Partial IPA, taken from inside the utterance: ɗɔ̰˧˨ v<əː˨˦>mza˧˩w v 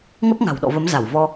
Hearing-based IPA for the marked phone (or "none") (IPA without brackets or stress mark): ə˨˦